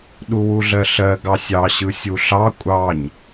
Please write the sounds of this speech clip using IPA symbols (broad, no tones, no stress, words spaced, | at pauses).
ɗuwuɮɜɬɜ ɡɑsʲɑɕɯ sʲuɬɑ kʷʼɑɲ